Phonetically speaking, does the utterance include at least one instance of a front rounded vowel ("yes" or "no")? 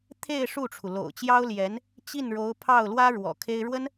no